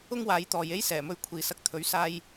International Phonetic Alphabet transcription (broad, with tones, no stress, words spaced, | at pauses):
ʊ˥ŋwaː˨˧jt̪ɔː˨j e˥jsɛː˨˩mɵ˧ɥ kʷʰiː˨sɐ˧k̚t̪ʰɵ˨˥ɥ saː˧j